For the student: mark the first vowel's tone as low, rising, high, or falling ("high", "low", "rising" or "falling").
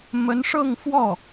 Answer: rising